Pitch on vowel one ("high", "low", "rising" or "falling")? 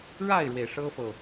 falling